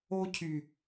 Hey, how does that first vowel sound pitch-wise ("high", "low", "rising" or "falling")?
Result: high